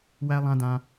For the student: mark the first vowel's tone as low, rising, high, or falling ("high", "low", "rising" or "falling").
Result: high